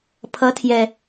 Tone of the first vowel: rising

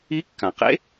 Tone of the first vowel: rising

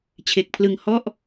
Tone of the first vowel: low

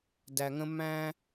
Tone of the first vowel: low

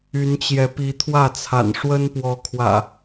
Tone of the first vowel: rising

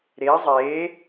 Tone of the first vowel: rising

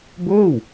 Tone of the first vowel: falling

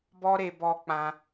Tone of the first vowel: high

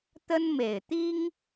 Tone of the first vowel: high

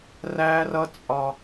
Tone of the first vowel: high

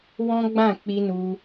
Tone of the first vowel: high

